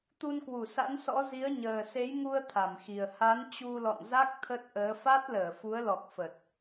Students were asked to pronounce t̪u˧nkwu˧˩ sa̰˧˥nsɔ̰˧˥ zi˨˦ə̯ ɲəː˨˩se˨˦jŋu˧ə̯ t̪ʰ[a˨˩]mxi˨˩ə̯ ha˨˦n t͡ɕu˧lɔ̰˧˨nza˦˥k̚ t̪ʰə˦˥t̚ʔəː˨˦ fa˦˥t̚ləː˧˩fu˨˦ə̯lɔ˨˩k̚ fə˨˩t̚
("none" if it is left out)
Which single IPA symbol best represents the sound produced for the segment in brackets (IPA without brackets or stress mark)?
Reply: a˧˩